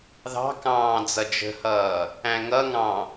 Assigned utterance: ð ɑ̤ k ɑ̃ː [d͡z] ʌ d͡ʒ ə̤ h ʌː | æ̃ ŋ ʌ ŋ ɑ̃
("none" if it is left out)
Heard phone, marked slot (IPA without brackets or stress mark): d͡z